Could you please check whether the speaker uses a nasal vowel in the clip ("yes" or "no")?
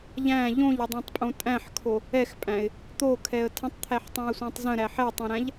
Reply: yes